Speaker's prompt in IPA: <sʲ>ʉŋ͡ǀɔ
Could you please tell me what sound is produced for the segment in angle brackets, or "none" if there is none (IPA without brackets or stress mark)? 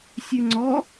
sʲ